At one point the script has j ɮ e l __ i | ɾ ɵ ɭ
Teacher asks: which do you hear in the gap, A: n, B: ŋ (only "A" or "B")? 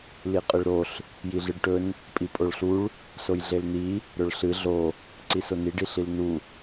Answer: A